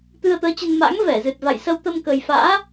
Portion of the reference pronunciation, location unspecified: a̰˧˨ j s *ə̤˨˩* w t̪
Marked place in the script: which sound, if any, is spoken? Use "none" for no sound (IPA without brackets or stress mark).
ə˧